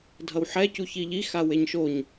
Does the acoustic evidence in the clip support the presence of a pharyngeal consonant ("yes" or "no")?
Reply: yes